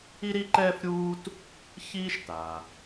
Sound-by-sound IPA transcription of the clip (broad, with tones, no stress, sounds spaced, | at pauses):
i˥ ɾ i˥ ǃ ɛː˥ f ɾʲ uː˥ t | ç iː˥ ʃ t a˩